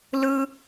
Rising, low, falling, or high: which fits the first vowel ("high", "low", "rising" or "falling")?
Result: high